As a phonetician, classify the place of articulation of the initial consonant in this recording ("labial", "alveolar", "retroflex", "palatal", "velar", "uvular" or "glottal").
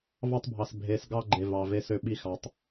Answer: labial